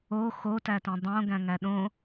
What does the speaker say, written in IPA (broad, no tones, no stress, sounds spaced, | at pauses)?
o x o t æ t ĩ dˤ õ ɡ æ̃ ŋ æ ɗ õ